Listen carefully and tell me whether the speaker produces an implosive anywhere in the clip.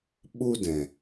yes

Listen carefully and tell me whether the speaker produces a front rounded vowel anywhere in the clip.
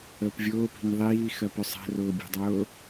yes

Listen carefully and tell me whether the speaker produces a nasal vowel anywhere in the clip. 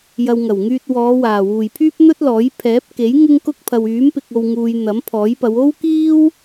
no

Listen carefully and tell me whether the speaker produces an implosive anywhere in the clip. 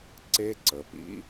no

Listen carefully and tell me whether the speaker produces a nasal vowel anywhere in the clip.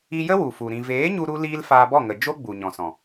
yes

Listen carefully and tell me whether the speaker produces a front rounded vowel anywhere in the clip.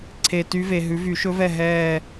yes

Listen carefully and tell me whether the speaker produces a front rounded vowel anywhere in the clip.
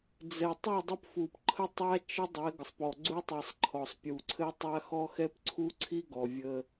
no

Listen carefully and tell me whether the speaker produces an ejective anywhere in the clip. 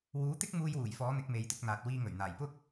no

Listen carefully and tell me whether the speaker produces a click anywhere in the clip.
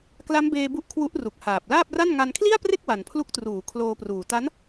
no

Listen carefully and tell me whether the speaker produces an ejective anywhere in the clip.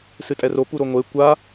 yes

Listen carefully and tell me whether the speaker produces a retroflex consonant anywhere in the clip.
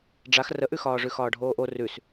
yes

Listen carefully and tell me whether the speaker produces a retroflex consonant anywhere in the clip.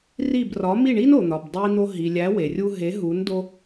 yes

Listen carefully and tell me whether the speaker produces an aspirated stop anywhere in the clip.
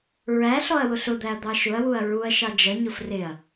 no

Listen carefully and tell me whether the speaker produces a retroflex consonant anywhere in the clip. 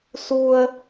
no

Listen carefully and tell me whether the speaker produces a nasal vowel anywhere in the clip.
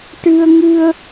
no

